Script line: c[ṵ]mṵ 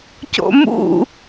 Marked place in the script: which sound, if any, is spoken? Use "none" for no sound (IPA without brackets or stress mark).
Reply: o̰